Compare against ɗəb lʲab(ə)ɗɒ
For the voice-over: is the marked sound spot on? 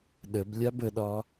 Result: yes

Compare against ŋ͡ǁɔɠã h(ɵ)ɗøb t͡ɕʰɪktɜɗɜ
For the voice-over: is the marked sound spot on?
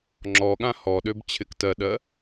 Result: no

